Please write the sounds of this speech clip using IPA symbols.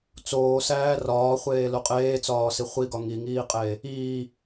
t͡soːsæː rɒːχʷeːlo qʼeːt͡sɒːsi χʷiɡɒ ŋiŋiːqʼeː | iː

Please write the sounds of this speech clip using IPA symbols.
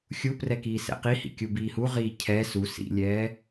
xʲuprɛ kiːsɛ̰qihḭ kʲubiːhu ʁiːcʰɛ su sḭlʲɛː

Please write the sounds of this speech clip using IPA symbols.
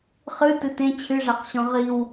χɨ tɨtẽ t͡ɕʰɨʐaqɕɔ̃ ʁiw

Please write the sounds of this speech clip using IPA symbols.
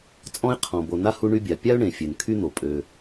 t͡sʼɔ̃˥ɪ̯qʰɔ̃˩bo˨ na˥hu˦ɳy˦bʲa˩ pʲa˥ʊ̯ɳẽ˩ fʲø˩nkʰy˥n̪o˩ pʼø˩

